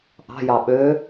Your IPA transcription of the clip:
ʔ ɑ̤ j ɑ ɓ ø

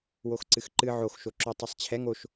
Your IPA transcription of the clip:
w o x ǀ ɨ x ǃ ɨ ʕ o x ʃ o ǁ o tˤ ɛ sˤ t͡ɕʰ ɛ ŋ o ʃ

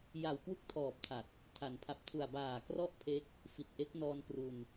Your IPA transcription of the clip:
j a˨˩ w k w u˦˥ k̚ tʰ ɔː˨˩ p̚ tʰ a˨˩ t̚ | tʰ a˩˦ n pʰ a˨˩ p̚ tʰ u˨˩ a̯ b aː˨˩ k r ɔ˦˥ ʔ pʰ e˦˥ k̚ | f i˨˩ t̚ ʔ e˦˥ k̚ n ɔː˧ n k r u˧ n

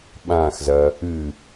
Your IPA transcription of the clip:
ɓ ã x z ɐ | ɨ

